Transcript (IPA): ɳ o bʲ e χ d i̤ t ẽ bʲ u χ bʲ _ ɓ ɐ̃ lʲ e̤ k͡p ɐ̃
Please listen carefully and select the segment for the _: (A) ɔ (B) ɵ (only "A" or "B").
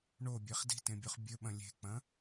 B